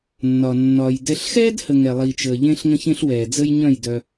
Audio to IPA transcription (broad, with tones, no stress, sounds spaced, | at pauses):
nː ɒ˨ nː ɒː˨ j d ɛ˧ ɬ x ɛː˦ d h ə˨ ŋ ɛ˨ lˠ i˨ t͡ʃ əː˨ ʎ ẽ˦ ɬ ŋ ə̃˦ ç ẽ˦ ɬ w ɛː˨ d͡z ə˦ j ɲ œ̃˦˨ j d œ˧